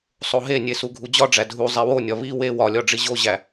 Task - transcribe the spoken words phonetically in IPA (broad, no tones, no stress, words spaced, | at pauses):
sˤoɦenʲe suɡʱud͡ʑɒɖ͡ʐæ dʱu zˤiwonʲɒ βi we wɒlʲɒ ɖ͡ʐiʑoʑæ